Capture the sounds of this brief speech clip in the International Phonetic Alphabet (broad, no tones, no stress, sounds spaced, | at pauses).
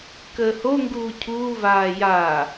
k əː h o ŋ ɡ uː cʰ uː v aː j aː